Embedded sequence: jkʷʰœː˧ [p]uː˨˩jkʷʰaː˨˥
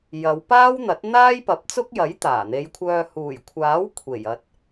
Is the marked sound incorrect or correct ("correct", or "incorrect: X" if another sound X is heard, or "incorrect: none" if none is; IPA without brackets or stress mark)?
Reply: incorrect: h